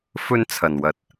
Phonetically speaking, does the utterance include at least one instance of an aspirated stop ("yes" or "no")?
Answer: yes